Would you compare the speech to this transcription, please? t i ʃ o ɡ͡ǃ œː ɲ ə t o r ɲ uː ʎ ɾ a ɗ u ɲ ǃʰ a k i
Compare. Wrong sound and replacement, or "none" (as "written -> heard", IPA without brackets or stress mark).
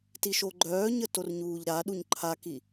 none